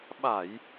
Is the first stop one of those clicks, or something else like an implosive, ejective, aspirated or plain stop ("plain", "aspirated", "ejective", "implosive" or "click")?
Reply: implosive